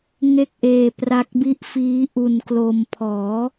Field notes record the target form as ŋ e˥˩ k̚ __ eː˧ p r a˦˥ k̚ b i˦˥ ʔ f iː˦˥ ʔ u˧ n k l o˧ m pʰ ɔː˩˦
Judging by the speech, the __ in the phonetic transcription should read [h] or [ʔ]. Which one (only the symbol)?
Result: ʔ